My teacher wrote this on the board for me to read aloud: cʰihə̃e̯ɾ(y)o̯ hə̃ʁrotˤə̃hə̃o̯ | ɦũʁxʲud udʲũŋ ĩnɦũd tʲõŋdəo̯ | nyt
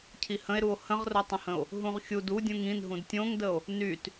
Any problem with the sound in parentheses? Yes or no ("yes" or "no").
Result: yes